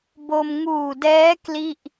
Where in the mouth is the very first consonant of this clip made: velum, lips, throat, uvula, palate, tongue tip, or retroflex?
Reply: lips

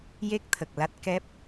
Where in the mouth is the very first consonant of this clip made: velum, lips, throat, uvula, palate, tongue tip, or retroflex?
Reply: palate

